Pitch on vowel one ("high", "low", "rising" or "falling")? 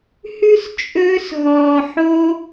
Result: high